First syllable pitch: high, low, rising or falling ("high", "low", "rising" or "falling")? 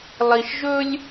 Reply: low